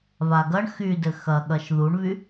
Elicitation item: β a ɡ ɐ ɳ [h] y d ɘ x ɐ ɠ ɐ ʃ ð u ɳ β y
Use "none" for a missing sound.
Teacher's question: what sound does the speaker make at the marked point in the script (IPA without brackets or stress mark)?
x